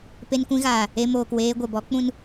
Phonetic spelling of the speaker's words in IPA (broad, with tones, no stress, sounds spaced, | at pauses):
p e˧ n kʷ ĩ˧ ɣ aː˨ | e˧ m oː˨ k w eː˧ ɡʷ ɛ˨ b ɔ˨˦ k͡p ũ˦ n